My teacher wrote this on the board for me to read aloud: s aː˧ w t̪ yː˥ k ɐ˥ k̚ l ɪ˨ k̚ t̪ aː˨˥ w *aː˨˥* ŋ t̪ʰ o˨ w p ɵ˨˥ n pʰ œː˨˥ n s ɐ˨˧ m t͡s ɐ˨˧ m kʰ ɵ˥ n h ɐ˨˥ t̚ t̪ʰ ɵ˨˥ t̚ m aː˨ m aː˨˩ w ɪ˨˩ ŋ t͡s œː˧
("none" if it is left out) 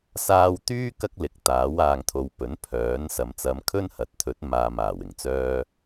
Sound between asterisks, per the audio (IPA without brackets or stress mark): aː˨